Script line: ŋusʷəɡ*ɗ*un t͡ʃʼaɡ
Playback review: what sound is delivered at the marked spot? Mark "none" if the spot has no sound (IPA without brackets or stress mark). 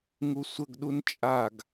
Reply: ɗ